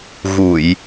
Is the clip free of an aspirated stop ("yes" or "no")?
yes